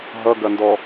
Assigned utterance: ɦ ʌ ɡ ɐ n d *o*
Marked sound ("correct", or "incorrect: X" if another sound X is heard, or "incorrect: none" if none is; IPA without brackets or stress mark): incorrect: ɔ